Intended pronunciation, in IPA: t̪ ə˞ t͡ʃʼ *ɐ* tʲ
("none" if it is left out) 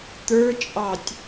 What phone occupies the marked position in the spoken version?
ɑ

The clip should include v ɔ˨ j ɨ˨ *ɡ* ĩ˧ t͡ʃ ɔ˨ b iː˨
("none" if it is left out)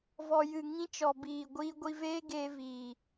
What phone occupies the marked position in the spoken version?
ŋ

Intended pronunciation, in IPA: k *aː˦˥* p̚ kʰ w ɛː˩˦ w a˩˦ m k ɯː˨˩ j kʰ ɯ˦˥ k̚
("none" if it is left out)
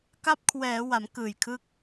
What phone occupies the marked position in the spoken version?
a˦˥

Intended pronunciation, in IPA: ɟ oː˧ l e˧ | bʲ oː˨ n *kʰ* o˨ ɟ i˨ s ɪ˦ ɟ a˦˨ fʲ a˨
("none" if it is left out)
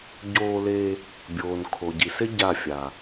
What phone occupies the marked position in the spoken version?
kʰ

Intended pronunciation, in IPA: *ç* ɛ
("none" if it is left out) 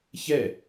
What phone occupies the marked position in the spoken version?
ç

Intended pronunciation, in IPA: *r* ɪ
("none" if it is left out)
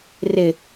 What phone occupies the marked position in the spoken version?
r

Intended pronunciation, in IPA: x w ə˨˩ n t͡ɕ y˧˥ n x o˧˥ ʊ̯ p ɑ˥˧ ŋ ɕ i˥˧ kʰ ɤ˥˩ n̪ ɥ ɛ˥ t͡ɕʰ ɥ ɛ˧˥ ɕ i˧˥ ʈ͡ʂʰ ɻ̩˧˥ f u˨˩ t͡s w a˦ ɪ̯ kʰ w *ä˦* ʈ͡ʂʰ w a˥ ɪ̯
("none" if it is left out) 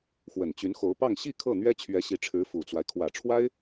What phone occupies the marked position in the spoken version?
ä˨˩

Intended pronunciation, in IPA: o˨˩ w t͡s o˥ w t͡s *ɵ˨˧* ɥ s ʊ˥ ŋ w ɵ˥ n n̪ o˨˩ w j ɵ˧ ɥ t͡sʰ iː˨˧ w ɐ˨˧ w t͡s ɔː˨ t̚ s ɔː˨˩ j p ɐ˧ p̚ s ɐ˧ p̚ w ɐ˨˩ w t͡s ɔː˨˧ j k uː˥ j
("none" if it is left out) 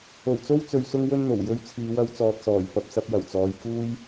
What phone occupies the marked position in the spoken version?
ɵ˨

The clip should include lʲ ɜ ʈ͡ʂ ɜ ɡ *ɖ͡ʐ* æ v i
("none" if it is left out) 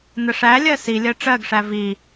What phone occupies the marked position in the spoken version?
ʂ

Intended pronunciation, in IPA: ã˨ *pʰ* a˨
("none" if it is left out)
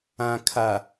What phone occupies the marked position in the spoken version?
kʰ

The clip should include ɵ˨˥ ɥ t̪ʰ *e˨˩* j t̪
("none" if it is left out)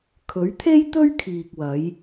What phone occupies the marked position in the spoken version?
e˥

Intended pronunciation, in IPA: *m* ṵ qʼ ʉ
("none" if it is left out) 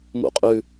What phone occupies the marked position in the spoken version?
m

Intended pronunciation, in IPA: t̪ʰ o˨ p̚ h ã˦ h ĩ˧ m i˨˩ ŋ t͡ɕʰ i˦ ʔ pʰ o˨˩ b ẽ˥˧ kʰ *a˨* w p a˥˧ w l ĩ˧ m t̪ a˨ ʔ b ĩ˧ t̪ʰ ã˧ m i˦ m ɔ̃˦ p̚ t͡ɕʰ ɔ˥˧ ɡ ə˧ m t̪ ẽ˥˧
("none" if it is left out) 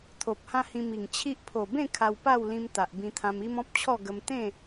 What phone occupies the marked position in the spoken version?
a˧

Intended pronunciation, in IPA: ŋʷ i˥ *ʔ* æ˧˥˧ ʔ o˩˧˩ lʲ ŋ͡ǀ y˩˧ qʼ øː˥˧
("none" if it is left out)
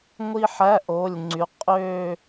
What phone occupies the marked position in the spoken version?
ħ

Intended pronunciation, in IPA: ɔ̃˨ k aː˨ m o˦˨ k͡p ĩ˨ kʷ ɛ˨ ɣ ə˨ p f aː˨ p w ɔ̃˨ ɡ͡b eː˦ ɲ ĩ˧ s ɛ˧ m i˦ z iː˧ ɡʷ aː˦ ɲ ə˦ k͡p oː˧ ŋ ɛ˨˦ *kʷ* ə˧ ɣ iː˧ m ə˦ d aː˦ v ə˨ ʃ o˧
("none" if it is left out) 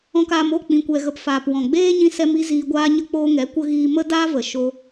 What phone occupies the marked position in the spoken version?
kʷ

